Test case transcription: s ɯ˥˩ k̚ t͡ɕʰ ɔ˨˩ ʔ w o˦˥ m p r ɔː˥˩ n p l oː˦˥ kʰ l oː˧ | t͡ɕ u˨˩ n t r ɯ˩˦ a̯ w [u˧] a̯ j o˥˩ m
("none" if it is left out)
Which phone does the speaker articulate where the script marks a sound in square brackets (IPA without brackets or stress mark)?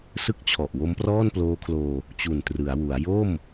u˩˦